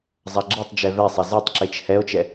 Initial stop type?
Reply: click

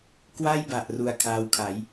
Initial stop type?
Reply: plain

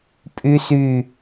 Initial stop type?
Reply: ejective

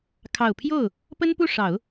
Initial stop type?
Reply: aspirated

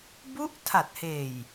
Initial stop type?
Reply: plain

